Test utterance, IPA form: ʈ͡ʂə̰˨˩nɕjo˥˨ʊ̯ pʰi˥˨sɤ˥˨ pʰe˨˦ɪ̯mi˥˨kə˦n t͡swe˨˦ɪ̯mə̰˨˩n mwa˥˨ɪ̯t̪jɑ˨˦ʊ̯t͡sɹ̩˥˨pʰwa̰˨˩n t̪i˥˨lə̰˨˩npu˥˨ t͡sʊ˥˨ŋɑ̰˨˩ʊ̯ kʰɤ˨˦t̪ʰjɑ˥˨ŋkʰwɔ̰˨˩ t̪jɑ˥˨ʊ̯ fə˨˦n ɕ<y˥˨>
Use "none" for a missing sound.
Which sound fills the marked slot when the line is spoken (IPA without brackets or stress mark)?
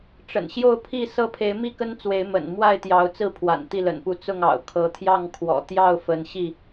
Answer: i˥˨